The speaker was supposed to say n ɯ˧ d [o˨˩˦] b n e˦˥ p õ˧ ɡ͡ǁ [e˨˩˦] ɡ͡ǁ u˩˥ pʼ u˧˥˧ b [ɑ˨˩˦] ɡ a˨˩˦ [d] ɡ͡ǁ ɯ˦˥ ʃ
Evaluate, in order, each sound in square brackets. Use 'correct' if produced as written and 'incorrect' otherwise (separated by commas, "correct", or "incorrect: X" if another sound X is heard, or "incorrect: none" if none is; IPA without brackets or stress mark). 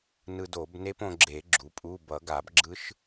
correct, correct, incorrect: ʌ˨˩˦, incorrect: b